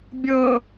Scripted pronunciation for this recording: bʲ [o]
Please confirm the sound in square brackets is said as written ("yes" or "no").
no